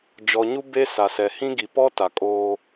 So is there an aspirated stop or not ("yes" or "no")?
no